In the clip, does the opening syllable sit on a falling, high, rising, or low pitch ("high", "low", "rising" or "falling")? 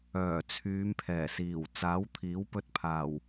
low